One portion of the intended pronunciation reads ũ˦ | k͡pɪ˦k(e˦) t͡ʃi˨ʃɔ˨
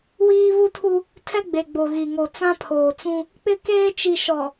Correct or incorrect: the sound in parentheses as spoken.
incorrect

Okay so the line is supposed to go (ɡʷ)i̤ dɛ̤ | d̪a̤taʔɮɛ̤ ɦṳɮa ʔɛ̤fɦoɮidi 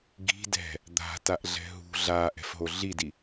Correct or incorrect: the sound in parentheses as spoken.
incorrect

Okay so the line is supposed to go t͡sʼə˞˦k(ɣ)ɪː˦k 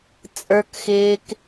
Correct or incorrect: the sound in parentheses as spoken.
incorrect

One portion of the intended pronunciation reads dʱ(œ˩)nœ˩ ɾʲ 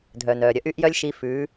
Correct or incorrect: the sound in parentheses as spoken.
correct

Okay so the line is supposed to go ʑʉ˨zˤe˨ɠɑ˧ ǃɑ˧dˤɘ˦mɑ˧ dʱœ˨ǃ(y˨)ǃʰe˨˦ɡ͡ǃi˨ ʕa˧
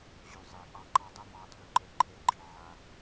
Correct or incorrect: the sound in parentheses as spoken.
incorrect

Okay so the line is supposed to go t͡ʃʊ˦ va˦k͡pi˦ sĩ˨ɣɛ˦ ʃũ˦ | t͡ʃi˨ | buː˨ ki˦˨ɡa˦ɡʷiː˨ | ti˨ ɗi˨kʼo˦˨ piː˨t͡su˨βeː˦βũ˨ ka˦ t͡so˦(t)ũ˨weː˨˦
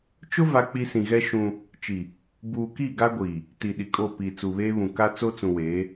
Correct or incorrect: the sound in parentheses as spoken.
incorrect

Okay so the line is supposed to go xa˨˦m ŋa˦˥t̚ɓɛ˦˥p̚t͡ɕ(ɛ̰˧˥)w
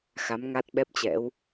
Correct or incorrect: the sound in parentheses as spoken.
correct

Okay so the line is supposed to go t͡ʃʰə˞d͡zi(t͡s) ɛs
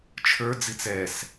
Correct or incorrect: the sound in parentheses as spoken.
correct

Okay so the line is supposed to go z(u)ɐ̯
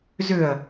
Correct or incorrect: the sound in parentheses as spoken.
incorrect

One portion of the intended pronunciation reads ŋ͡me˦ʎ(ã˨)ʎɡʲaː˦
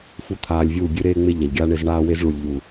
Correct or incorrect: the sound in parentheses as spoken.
incorrect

